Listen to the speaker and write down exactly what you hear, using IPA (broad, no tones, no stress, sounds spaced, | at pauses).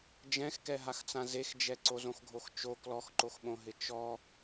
d͡ʒ ɛ̃ x k ɛ ɦ a x t͡s ã z e x d͡ʒ ɛ ǀ o z õ x ɡʱ o x t͡ʃ o k l ɔ x ǃ o x ɓ õ ɦ ɪ t͡ʃ ɔ